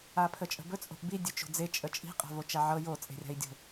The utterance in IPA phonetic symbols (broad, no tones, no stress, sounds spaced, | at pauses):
a pʰ ə t͡ʃʼ ə̤ b ɵ t͡sʼ o̤ ʔ b i dʲ ɵ t͡ʃ o̤ d͡z e t͡ʃʼ ə t͡ʃʼ i̤ qʼ a̤ v o t͡ʃ a ʕ ɤ j o t͡sʼ e̤ rʲ a̤ i̯ dʲ o̤